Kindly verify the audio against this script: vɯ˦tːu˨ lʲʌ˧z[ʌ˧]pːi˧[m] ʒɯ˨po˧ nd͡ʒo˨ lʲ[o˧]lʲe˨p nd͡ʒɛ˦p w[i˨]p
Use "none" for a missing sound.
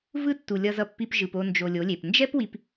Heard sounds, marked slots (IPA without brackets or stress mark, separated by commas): ʌ˧, p, o˨˦, i˧